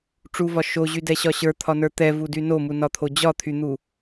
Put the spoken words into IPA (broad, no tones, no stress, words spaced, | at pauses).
ʈ͡ʂuvɒ ʃoʑydɛɕɒ ɕə˞t̪ʰɒnə˞ t̪ɛvudy nomunɒt̪ʰo d͡ʑɒt̪ʰyn̪u